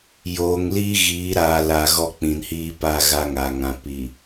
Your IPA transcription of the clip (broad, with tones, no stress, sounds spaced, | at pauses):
j oː˨ ŋ l i˦ ɣ iː˨˦ ɾ aː˨ l a˨ ɣ ɔ˦ k͡p ĩ˨ n h iː˦ p a˦˨ ɣ a˦ ŋ a˨ ŋ ã˨ p i˨